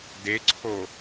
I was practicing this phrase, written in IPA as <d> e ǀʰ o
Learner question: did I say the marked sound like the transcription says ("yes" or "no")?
yes